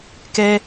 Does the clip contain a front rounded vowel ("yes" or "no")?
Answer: no